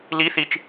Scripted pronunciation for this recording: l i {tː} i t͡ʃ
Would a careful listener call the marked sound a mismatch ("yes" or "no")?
yes